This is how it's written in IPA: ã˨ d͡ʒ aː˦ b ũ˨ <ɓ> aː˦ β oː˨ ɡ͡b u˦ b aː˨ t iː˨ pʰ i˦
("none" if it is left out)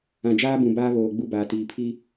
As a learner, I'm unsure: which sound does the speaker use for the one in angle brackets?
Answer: b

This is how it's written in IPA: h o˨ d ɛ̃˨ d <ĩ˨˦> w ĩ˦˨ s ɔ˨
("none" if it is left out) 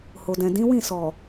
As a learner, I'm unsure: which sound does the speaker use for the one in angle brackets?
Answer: ĩ˨˦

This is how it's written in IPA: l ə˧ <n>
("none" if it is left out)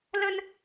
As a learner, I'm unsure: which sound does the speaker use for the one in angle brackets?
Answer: n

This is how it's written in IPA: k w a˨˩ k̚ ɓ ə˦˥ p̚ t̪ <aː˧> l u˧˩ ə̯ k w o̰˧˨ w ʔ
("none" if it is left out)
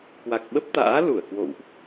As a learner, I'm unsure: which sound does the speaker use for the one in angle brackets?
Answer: a̰ː˧˥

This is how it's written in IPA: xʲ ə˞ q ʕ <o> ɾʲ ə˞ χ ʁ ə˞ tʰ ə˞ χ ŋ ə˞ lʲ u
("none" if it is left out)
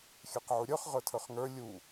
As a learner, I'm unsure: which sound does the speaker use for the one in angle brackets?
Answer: u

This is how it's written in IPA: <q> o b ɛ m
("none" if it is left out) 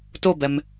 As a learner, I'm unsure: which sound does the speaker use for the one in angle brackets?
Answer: t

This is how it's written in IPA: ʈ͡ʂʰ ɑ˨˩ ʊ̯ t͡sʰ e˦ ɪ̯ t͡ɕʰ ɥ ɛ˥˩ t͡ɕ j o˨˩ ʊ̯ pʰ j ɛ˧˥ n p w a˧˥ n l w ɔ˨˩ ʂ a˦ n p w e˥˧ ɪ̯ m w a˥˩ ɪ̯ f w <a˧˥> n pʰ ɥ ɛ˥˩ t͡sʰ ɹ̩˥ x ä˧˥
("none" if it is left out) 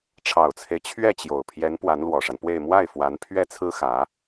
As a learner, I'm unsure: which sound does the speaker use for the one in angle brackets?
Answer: a˧˥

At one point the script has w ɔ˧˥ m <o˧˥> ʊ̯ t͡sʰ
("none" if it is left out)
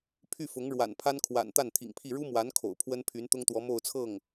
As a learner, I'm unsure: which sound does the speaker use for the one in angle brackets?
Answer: o˥˧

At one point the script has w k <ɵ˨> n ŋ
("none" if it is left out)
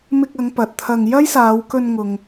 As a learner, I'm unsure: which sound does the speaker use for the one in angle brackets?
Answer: ɵ˧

